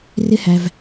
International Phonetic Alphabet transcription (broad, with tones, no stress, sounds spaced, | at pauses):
r ɪ˦ h æ˧ v